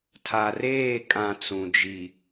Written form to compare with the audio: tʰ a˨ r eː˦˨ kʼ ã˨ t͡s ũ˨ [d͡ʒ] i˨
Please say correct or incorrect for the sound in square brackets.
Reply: correct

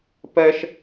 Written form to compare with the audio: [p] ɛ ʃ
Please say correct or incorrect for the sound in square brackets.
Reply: correct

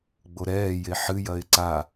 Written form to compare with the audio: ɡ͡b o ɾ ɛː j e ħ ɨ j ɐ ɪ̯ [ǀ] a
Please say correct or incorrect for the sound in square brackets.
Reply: correct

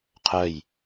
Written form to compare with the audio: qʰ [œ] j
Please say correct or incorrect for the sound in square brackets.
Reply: correct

